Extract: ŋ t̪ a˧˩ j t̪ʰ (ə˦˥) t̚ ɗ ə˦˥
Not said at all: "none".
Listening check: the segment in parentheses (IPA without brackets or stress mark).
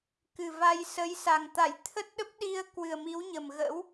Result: ə˦˥